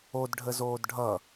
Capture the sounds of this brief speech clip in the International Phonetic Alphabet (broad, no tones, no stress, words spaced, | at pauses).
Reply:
odɖʱəzoːd ɖʱʌ